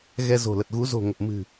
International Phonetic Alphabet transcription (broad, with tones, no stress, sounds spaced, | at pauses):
ɣ ɛ˧ z o̤˨˩ l ə˨˩ t̚ ɣ u˨˦ z o̤˨˩ ŋ ə˨˩ p̚ m ɨ̤˨˩